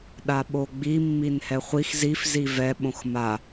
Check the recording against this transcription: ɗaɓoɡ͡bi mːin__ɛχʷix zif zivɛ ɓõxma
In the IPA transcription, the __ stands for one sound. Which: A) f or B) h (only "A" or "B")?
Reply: B